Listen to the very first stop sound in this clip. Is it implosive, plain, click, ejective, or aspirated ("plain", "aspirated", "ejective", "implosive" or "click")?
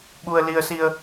implosive